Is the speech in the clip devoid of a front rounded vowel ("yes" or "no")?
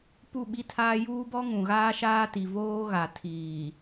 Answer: yes